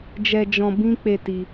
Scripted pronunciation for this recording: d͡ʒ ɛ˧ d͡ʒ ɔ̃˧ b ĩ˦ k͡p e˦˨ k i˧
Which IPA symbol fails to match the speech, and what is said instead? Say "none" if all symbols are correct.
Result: k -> t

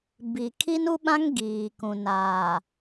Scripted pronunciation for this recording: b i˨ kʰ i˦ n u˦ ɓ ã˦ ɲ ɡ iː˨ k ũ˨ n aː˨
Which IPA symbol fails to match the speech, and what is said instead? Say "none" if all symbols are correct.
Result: ɲ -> ŋ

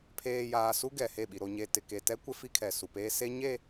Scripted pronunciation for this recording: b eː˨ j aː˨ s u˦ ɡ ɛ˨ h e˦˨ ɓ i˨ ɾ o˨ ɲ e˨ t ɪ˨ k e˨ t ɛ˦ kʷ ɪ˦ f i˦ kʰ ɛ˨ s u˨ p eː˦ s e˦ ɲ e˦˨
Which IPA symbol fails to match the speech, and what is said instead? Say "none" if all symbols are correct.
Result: b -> pʰ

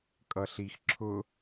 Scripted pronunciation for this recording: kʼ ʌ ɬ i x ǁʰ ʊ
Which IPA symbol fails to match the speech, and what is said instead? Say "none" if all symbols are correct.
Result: none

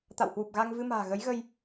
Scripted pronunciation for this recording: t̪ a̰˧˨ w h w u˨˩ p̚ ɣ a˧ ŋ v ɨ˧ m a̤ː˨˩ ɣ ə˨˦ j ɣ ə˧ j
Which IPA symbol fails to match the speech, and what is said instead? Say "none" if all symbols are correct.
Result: none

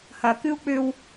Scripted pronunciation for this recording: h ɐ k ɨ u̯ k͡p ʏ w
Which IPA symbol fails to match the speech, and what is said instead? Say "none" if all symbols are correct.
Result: none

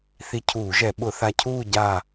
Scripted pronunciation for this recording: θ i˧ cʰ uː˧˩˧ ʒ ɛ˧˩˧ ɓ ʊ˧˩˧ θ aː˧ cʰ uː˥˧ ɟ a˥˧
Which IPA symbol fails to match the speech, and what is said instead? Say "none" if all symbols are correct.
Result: aː˧ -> a˧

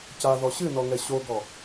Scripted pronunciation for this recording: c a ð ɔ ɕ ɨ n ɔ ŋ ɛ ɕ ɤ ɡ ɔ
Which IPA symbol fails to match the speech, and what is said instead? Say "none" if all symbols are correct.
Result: ɤ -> o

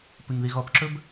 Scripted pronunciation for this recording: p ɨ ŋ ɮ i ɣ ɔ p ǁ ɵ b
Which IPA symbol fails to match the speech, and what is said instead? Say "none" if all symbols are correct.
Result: ɮ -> ð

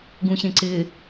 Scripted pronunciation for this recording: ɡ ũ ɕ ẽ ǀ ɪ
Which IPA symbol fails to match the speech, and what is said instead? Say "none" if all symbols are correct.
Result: none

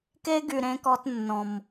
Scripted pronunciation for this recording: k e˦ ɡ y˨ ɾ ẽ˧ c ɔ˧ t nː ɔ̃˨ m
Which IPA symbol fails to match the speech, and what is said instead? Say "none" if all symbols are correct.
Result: c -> k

